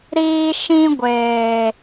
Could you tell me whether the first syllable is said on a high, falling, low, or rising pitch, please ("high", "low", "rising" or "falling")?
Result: high